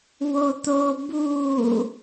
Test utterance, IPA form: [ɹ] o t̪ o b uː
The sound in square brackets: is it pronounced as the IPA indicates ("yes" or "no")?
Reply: no